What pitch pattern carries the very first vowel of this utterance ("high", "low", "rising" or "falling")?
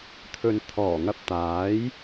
low